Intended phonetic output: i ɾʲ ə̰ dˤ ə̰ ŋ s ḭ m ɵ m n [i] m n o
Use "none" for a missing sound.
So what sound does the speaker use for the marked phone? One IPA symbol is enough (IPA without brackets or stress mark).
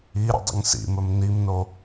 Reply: i